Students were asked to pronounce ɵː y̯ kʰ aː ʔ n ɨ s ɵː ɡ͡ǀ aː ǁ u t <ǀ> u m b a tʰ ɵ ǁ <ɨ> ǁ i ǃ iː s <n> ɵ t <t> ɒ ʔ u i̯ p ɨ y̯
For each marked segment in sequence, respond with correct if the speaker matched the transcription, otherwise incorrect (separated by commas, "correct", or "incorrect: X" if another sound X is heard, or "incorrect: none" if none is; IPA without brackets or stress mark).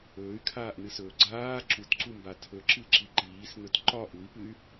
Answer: correct, correct, correct, incorrect: ǃ